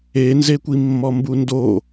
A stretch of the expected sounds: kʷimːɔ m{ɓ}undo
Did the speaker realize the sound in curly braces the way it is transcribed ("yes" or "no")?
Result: no